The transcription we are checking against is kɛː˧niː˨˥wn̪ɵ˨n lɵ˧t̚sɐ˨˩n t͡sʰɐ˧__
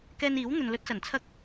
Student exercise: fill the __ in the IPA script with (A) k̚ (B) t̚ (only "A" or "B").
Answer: A